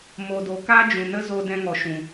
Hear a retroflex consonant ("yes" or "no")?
no